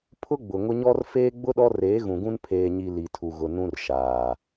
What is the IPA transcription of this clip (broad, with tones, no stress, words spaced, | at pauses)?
pʰʊ˦ɡ͡bʊ˨ ŋʊ˦ ɲɔ˦r feː˦ɡ͡bʊ˦ ɗɔ˦reː˨˦ɣũ˨ɡũ˦n pʰeː˨ɲi˨ li˨tʰu˨ɣʊ˨ nũ˦rʃaː˨